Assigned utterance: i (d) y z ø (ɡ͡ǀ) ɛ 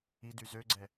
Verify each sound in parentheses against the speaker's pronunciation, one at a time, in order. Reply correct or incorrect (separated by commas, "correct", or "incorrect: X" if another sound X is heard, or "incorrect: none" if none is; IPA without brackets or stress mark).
correct, correct